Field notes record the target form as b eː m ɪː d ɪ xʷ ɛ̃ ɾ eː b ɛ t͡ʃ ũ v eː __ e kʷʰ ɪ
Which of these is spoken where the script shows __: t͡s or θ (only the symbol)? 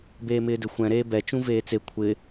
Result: t͡s